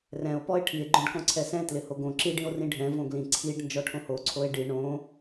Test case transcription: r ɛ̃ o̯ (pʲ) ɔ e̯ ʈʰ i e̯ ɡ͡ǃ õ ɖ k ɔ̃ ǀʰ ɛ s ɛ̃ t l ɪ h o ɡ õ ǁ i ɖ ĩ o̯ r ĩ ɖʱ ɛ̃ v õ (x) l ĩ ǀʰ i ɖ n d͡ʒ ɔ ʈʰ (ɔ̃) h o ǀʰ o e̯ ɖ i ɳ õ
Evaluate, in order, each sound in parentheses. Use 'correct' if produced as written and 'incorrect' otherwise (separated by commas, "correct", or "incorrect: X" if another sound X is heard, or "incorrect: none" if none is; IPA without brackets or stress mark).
incorrect: p, incorrect: ɡ, incorrect: õ